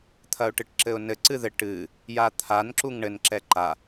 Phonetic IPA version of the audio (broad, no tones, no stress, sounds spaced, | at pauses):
t̪ʰ ɐ ʊ̯ ʈ ɨ ʈ ǁ ɘ ʊ̯ n ɘ ǀ ɨ ð ɘ ʈ ɨ | j a t̪ʰ a n ǁ u ŋ ɳ ɘ n ǁ ɛ ǃ a